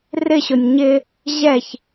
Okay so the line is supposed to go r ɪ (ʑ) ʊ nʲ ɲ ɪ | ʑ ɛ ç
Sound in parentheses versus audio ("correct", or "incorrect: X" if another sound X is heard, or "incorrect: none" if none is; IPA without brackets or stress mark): incorrect: ɕ